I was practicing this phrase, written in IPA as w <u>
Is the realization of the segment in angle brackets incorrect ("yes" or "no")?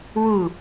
no